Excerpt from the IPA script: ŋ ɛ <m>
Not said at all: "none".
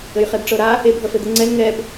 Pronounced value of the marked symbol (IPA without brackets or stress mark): b